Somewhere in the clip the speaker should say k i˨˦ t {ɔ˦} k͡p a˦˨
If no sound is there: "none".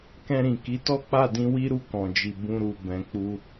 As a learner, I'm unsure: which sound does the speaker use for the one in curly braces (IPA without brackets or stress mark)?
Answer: ɔ˦